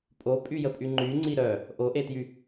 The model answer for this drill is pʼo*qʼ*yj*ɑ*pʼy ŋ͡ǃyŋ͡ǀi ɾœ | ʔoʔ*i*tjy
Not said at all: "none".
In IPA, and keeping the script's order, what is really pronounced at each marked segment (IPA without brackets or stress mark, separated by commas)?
pʼ, ə, e